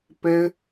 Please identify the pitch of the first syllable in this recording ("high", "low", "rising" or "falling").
high